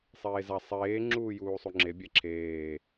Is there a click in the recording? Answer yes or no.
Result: yes